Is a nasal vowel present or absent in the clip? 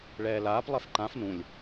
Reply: present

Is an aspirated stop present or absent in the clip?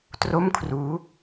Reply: present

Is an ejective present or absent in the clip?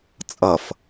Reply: present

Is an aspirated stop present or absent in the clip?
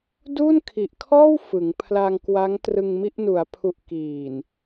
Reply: present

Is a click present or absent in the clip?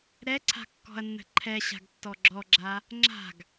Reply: present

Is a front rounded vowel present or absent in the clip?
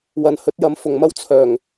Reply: present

